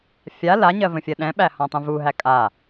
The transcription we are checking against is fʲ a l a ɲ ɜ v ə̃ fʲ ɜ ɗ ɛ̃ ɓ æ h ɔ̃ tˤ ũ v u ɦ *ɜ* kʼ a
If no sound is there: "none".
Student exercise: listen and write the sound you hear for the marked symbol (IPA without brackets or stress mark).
æ